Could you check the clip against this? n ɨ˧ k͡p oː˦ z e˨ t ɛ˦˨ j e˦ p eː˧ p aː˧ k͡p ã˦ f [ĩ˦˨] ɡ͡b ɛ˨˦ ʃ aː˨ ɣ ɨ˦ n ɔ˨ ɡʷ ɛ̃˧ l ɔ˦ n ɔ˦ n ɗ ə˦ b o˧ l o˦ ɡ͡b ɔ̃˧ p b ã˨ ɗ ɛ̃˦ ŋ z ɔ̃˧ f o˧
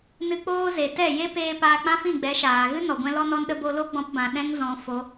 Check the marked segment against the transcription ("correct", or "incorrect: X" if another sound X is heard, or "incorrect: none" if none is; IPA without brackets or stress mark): correct